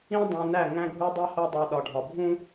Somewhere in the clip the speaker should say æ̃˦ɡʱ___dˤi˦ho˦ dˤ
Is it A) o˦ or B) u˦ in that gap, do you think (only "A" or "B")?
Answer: B